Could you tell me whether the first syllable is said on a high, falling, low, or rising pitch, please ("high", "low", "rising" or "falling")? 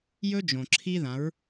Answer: high